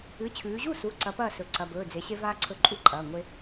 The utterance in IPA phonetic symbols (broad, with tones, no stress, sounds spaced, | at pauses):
ɨ˩˧˩ t͡ɕʰ ʉː˩˧ ʑ u˥˩ s u˩˧˩ ǀ ɐ˨˥ p ɐː˥˩ s ɵ˩˧ ǀ ɐ˩˧˩ b ɵː˩˧˩ d͡z e˩˧ ɕ e˦ v aː˦ ǀʰ ɵ˦ ǃʼ u˥˩ ǃʼ ɐː˩˧˩ ŋʷ e˦